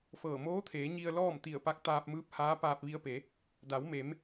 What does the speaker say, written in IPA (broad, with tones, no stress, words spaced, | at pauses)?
fɤː˧˩ moː˧˥t̪ʰeː˩˧ ɲi˧ə̯ lɔː˥˨m t̪i˧˩ə̯pa˧k̚t̪aː˧p̚mɯː˧˥p̚ haː˧˥paː˧p̚ʋi˧ə̯pe˩˧ | da˩˧wme˩˧m